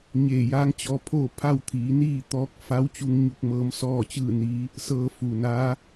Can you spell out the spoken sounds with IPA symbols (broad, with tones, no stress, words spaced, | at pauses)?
ɲeː˧˩jaː˧˥ŋt͡ɕɔː˧pʰoː˥˨ pʰa˥˨wt̪ʰiː˩˧niː˥˨t̪ɔː˧˥k̚ fa˧˥wt͡ɕu˧ŋɲu˧k̚ mɤː˧˥msɔː˥˨t͡ɕɯː˥˨niː˧˥ | sɤː˧fu˩naː˧˥